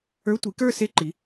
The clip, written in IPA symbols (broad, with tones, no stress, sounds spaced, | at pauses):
ə˞˧˥˧ tʷ i˩˥ k ə˞˥˧ s e˥˧ ǃ i˩˥